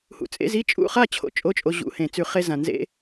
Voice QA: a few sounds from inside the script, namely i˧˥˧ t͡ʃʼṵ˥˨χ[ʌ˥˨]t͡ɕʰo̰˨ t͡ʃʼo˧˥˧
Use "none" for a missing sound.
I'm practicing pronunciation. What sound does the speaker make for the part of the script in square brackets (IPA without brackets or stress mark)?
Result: a˥˨